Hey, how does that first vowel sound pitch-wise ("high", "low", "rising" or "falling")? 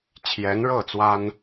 rising